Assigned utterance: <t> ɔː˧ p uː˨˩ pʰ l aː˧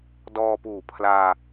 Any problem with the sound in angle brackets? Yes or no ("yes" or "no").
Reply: yes